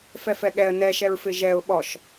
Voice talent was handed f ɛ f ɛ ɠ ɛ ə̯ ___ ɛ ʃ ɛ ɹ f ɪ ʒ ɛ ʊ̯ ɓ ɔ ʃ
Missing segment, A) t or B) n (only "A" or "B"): B